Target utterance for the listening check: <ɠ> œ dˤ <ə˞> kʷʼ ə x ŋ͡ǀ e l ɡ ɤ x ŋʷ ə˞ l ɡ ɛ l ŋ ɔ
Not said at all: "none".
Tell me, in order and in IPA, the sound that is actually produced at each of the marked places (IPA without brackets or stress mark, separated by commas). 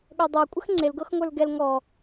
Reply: ɠ, ə˞